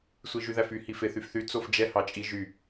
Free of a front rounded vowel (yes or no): no